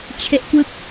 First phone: t͡ɕʰ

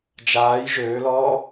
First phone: d͡ʒ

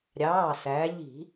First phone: ɾʲ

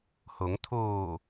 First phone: h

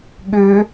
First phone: ɠ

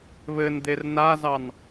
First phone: β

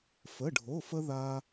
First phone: f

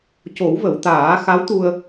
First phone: c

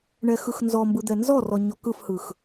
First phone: ɳ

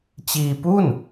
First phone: t͡ɕ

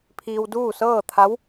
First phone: pʰ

